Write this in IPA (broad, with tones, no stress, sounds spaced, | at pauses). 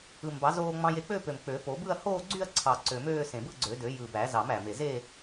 ɯ˨˩ m b ɑ˨˩˦ z oː˧ ŋ͡m ɑ̃˧ j e˧ k͡p ø˥˧ p ø˨˩ m k͡p ø˨˩˦ p o˨˩˦ b ɯ˥˧ ɐ̯ h oː˥˧ ɡ͡ǀ y˥˧ ɐ̯ ǀʰ ɑ˨˩ ǀ ø˨˩ m øː˥˧ s ẽ˨˩ b ɯ˥˧ ɡ͡ǀ ø˨˩˦ d ø˨˩˦ j ɯ˨˩ b æ˨˩˦ z ɑ˨˩˦ m æ˨˩ m e˨˩ z e˥˧